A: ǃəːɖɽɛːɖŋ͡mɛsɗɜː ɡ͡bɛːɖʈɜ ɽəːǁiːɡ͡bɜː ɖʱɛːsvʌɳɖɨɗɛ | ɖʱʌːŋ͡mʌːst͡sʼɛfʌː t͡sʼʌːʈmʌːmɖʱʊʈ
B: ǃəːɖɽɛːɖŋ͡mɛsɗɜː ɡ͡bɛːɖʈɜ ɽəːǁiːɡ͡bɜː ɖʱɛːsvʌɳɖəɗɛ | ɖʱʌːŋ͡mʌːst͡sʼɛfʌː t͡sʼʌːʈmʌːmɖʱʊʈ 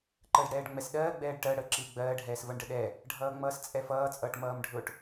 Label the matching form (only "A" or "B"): B